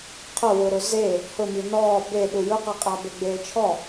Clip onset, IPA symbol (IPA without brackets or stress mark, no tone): qʰ